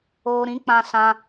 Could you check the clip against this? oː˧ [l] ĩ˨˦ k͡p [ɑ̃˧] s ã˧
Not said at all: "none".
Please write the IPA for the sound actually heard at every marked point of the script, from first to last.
ɾ, ã˧

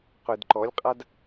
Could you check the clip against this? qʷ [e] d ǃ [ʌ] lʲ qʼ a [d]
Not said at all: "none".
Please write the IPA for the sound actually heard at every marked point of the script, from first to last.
e, ɔ, d

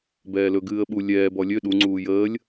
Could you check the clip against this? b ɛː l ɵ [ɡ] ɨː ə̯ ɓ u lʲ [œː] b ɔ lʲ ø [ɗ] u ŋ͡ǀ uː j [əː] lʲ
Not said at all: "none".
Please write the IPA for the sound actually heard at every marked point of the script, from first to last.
ɡ, ɛː, ɗ, əː

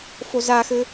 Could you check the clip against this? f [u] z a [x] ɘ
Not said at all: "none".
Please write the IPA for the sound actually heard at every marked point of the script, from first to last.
o, x

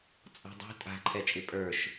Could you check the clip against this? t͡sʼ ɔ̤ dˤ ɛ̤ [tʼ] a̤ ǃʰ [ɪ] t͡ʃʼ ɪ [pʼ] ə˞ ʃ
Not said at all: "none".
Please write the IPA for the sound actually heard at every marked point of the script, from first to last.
tʼ, ɛ, pʼ

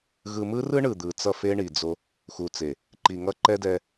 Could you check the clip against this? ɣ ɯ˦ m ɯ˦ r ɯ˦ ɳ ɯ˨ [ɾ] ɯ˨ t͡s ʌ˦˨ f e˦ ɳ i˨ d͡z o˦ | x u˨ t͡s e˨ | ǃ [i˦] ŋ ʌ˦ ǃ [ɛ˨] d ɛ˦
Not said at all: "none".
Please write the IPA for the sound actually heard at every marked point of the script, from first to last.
d̪, i˨, ɛ˦

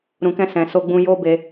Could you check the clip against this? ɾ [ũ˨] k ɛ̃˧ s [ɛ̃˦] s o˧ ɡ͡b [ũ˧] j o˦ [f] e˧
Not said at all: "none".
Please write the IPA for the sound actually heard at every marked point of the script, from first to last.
ũ˨, ɛ̃˨, ũ˧, b

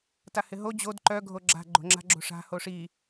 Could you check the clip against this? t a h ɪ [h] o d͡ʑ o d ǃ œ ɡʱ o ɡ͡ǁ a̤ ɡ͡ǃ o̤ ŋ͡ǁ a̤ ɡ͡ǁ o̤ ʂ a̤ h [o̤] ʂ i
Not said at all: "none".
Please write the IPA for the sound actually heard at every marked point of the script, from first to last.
ɦ, o

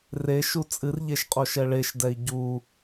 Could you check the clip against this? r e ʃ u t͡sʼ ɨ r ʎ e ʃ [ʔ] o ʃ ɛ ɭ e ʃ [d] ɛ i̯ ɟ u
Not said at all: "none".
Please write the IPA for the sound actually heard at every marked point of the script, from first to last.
qʼ, d

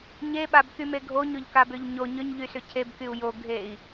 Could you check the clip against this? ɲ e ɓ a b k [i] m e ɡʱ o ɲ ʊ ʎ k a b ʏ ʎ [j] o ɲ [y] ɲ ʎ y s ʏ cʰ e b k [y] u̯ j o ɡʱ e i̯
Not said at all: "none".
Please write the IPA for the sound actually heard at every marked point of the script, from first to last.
y, ɲ, ʏ, y

